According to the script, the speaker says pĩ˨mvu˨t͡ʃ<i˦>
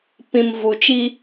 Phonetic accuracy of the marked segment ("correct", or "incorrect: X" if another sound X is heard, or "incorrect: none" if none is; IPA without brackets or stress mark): correct